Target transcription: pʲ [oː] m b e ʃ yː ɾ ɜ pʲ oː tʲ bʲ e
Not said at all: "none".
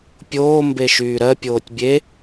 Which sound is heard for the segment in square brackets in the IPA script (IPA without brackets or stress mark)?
oː